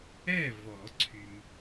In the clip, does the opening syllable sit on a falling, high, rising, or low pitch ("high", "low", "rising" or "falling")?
falling